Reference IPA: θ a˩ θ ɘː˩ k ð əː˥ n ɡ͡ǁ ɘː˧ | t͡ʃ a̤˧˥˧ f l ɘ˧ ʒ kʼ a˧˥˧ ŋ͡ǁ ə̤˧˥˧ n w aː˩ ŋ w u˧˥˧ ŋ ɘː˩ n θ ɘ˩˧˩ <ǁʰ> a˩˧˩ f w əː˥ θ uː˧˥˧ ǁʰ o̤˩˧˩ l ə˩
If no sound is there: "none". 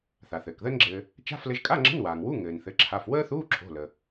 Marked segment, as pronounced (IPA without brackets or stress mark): ǁʰ